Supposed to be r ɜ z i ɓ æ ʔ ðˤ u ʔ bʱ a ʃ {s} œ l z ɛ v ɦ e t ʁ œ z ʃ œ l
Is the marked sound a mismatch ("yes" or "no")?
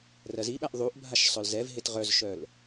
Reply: yes